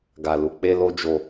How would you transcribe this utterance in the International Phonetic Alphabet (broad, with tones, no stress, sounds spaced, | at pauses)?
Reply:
ɡ a˧ l u˧ k͡p e˦ l o˦ d͡ʒ o˧